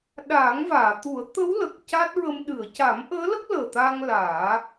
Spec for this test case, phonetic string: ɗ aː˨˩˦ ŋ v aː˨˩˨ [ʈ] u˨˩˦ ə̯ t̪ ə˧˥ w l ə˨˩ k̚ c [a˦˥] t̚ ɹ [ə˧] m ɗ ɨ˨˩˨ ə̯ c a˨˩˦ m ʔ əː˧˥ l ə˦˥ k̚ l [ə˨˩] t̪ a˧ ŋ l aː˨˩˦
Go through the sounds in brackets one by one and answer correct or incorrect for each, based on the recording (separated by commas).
incorrect, correct, correct, incorrect